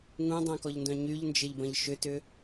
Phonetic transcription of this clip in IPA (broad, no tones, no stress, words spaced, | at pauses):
ŋũdˤœ̃kɔʎndœ̃ ɲyʎnd͡ʒɪʎbɐ̃ʎ ʃʏtʏ